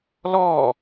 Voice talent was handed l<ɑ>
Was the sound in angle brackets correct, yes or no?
no